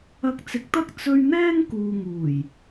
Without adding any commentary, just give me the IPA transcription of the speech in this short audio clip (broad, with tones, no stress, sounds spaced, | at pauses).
ɐ˧ k̚ t͡s ɪ˨˥ k̚ t̪ ɐ˥ k̚ t͡s ɵ˧ ɥ n̪ ɛː˥ ŋ k uː˨ ŋ uː˨˩ j